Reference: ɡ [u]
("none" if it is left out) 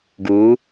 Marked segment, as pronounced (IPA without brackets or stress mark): u